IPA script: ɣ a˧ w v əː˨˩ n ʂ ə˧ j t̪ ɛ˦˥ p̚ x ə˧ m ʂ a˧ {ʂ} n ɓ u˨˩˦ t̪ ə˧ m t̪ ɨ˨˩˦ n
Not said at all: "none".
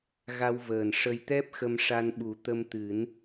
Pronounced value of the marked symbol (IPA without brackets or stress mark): none